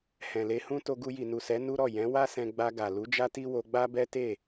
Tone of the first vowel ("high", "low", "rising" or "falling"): low